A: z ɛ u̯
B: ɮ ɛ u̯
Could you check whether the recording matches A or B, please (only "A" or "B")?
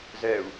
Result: A